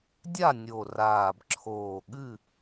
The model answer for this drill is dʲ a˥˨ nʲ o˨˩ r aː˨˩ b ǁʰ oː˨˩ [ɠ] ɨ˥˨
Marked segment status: correct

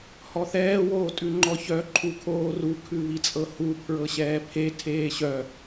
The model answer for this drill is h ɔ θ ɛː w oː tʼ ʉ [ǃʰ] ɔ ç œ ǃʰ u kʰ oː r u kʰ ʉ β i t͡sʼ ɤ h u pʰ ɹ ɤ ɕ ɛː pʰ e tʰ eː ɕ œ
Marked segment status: incorrect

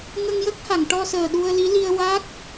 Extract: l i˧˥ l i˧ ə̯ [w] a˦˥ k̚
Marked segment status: correct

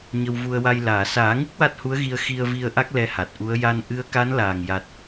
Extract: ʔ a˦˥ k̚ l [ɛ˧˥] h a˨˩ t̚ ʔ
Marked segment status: correct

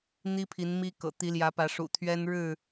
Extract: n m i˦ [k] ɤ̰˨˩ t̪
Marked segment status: correct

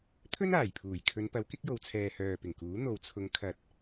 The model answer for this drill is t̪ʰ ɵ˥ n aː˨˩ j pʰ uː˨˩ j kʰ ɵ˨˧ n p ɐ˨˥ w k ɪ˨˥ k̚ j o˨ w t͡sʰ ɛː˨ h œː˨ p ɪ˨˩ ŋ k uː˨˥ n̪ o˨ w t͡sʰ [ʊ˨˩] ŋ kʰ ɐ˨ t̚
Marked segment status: incorrect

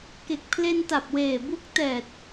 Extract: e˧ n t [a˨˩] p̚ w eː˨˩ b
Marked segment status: correct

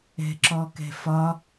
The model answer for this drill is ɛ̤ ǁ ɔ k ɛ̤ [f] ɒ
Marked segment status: correct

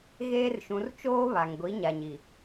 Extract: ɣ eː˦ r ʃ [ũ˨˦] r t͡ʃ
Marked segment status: correct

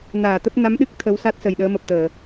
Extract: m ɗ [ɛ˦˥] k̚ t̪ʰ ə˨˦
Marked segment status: incorrect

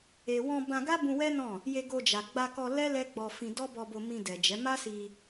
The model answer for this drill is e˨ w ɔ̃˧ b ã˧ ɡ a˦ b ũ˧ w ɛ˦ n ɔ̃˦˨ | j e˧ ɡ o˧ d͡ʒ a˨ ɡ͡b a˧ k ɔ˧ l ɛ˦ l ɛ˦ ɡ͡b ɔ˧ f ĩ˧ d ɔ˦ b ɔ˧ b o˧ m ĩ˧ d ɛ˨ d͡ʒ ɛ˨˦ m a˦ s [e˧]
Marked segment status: incorrect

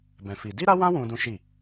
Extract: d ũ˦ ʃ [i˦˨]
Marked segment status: correct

